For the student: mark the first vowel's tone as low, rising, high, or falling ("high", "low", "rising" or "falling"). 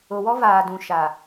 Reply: low